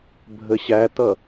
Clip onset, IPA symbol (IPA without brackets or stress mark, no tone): bʱ